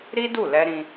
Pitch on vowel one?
high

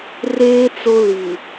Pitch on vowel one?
high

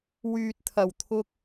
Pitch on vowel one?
low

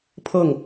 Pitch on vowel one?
falling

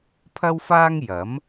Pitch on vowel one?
high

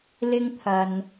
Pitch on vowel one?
high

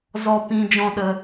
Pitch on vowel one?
low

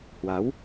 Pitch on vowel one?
rising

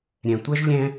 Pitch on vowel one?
low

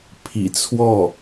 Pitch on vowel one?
low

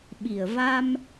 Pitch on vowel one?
low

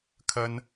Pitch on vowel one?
high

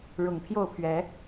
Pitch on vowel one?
low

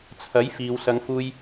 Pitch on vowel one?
rising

